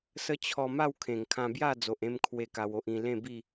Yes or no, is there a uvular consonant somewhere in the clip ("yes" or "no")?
no